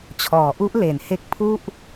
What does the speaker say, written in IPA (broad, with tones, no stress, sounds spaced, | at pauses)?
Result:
t͡ɕʰ ɔː˩˦ ʔ u˦˥ ʔ l e˩˦ n h e˦˥ k̚ pʰ u˥˩ ʔ